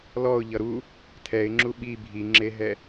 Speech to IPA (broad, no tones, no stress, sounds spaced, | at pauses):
l ɔ ʊ̯ ʎ ʌ ɾ u | tʰ ɛ ɪ̯ ŋ͡ǁ u ɓ i bʱ i ŋ͡ǁ e ɦ ɛ